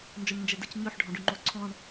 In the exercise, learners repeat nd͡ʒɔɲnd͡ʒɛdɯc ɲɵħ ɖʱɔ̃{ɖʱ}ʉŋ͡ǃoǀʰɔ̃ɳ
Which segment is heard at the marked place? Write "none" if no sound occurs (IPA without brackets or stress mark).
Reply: ɖ